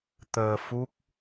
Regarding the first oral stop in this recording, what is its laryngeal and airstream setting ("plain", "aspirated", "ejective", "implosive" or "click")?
plain